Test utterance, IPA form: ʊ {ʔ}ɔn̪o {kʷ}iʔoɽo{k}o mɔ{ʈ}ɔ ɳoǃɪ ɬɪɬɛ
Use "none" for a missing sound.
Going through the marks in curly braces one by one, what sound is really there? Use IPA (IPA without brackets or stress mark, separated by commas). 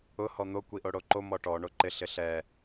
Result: h, kʷ, ǃ, ʈ